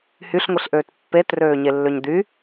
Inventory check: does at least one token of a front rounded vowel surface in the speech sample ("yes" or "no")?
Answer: yes